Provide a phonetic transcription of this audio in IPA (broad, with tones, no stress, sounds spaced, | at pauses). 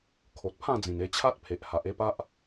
kʰ o˨ t̚ pʰ ã˥˧ d͡z ĩ˨˩ n e˧ t͡ɕʰ a˦ t̚ pʰ e˨ ʔ h a˨ ʔ e˥˧ p a˦ ʔ